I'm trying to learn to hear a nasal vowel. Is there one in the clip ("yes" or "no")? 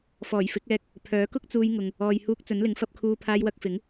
no